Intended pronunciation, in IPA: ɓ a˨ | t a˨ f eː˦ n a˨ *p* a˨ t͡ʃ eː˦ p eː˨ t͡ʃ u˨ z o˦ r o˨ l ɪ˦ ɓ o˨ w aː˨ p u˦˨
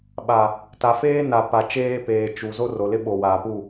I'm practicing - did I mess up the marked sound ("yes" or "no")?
no